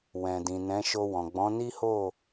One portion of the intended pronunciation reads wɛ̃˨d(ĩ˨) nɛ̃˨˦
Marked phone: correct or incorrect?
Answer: correct